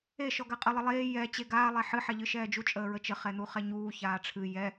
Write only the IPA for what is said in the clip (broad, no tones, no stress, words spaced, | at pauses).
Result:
e ʃɔɡaqʼə lˠəlˠeː jɛ t͡ɕeɡaː lˠɛħɨ ħɛʎɨʃɛːd͡ʒu t͡ʃʼəːɹət͡ʃə χɛn̪uχɛɲuː çaːʈ͡ʂʰɨ jɛ